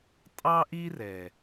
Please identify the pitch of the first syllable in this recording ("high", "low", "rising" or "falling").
high